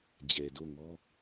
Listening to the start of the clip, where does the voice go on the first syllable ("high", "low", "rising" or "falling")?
low